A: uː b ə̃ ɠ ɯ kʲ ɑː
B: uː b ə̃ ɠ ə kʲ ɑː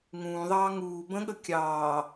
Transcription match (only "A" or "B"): B